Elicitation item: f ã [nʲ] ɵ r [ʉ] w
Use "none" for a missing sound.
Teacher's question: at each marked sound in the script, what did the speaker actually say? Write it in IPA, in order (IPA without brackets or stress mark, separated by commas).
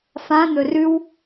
n̪, ʉ